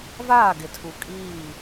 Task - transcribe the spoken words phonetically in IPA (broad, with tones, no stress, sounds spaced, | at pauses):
v aː˦˨ ɡ ɪ˨ tʰ u˨ kʼ iː˦˨